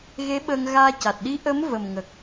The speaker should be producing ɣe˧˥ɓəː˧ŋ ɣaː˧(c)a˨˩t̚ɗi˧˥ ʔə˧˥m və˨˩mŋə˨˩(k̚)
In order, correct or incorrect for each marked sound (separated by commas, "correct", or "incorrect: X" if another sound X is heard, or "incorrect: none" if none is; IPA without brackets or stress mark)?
correct, correct